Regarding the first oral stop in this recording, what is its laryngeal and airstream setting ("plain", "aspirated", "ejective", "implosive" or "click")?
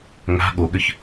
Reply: implosive